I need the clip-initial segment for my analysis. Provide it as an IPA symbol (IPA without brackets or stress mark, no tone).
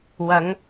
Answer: w